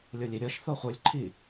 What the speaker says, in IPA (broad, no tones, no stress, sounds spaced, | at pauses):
lʲ o lʲ i ɾʲ ɤ ʃ θ o χʷ ə˞ lʲ ǃʰ i